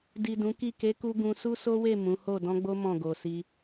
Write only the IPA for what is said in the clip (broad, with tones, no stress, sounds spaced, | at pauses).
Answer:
d i˨ d ũ˨˦ k i˦˨ k e˨˦ k u˧ ɡ ũ˧ s u˦ s o˦ w e˦˨ m ũ˨˦ h o˦˨ d ɔ̃˧ ɡ͡b o˦ m ɔ̃˦˨ ɡ o˨ s i˧